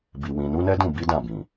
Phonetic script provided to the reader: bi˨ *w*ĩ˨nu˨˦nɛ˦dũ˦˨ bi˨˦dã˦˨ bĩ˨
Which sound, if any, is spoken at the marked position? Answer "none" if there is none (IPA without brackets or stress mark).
w